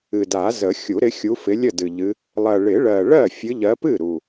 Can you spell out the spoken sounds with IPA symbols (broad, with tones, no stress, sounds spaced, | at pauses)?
ɨ˨˩ d a˨˩˦ z ə˨˩˦ xʲ u˨˩˦ ɾ ɪ˨˦ xʲ u˨˦ f ɪ˨˦ lʲ ə˥˩ d ɨ˨˩ ʎ ɨ˨˦ | lˠ ɜ˨˩ ɭ ɪ˨˩˦ ɭ ɜ˨˩ ɭ ɜ˥˩ fʲ ɨ˨˦ ʎ ɜ˨˦ p ɨ˥˩ ɾ u˨˩